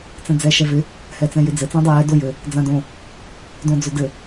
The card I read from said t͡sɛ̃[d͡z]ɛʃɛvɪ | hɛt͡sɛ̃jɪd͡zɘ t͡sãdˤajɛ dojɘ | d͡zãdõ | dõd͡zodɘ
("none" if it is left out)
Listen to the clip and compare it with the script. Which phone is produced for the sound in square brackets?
d͡z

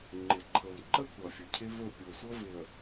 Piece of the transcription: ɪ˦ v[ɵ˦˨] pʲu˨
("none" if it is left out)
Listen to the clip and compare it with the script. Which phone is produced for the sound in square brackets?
ɵ˦˨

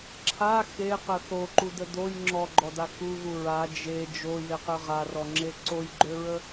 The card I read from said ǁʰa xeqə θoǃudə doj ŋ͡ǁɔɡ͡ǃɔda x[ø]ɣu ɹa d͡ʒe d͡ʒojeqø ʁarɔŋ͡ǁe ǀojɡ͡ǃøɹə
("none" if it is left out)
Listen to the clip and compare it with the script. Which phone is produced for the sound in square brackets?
u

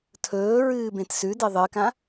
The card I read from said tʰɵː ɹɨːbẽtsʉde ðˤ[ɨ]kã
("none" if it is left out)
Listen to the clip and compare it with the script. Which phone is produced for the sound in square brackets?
ɨ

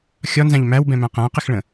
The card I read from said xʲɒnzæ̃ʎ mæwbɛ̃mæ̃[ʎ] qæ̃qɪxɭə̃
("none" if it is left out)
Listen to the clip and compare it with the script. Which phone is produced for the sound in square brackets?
none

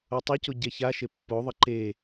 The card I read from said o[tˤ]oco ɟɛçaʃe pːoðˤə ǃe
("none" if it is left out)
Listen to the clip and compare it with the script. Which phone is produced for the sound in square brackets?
tˤ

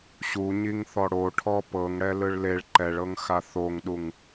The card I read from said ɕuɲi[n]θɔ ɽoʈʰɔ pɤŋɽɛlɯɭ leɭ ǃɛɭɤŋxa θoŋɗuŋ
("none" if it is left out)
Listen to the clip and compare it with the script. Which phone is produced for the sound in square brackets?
ŋ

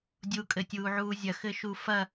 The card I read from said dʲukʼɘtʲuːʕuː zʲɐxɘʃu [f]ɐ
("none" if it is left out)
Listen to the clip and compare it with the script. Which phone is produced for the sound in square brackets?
f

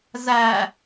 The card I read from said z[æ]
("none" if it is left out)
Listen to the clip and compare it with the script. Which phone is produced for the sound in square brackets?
æ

